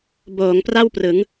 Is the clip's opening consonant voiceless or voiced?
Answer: voiced